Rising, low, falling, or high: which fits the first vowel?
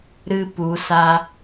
high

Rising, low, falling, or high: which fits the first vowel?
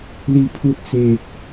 low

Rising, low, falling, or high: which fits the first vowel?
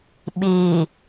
low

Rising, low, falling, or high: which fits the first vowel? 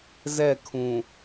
falling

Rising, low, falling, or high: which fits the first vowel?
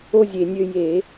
high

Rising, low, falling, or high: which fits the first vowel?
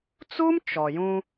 high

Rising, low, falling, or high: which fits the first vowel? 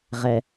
low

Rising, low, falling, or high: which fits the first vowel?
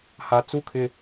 low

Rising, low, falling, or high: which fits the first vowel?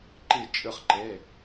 falling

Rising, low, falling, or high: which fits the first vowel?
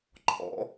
rising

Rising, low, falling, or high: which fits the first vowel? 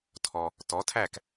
low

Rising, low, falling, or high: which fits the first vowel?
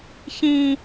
high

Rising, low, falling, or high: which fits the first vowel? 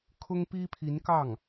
high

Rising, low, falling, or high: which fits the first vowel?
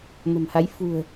low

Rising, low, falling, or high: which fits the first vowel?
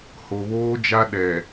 low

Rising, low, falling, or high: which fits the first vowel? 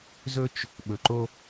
high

